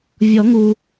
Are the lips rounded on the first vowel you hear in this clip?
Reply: yes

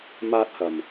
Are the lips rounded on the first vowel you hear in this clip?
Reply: no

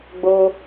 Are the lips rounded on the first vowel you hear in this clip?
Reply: yes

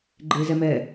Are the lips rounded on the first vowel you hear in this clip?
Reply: no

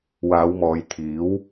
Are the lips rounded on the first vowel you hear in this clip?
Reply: no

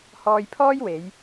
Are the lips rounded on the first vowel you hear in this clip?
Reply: yes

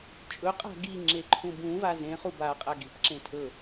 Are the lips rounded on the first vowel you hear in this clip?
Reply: yes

